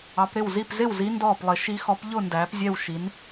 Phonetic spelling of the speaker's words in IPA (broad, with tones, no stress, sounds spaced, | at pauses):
ɑ˨˥ p ɾ ɪ˥˨ w z i˥˨ p z ɪ˥˨ w z i˨˥ n d ɔː˥˨ p lˠ ɪ˨˥ ʃ i˨˥ x ɔ˨˥ p ʎ ʊ˥˨ n d æː˨˥ p zʲ ɛ˥˨ w ʃ i˨˥ n